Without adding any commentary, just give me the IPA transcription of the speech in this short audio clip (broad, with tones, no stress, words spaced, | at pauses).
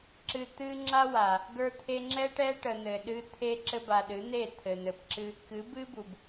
ǁɨ˨ t̪ɨ˦ ŋ͡ǁa˦wa˨ | ɡə˞˧t̪ʰe˧ŋ͡ǁɛ˦ ʈɛ˦ ʈə˨n̪ɘ˨ ɗɨ˦ t̪ʰe˧ǁɘ˧ba˨ ɗɨ˨˦n̪e˦˨t̪ʰɘ˨n̪ɘ˨p ǁɨ˧ | kɨ˨˦ bɨ˦bu˨b